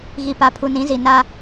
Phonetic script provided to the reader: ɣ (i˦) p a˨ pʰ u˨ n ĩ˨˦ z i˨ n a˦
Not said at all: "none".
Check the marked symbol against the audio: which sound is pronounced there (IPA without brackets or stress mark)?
i˨